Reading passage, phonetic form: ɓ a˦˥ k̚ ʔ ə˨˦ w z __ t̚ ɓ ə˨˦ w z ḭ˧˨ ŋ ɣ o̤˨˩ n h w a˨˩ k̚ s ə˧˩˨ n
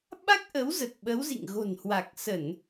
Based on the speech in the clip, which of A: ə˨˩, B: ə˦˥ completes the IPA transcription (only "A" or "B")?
A